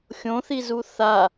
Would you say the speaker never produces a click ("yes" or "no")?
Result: yes